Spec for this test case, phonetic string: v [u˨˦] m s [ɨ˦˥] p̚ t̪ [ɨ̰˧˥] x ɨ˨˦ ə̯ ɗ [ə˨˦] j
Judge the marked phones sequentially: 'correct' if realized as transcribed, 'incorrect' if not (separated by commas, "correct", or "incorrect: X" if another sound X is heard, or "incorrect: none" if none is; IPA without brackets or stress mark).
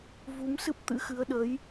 correct, correct, correct, correct